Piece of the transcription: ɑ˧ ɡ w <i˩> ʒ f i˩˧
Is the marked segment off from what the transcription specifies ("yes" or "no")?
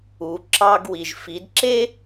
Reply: no